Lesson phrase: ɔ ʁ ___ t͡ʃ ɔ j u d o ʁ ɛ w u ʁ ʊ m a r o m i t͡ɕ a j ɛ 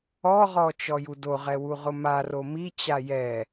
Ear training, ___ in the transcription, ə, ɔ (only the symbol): ɔ